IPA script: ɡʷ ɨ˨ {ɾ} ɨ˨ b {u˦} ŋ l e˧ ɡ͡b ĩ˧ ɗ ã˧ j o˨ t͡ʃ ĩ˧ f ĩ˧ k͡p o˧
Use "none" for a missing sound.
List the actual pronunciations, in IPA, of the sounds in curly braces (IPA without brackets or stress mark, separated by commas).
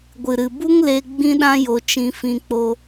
ɾ, u˦